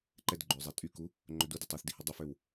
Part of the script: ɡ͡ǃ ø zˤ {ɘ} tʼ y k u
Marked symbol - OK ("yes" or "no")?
no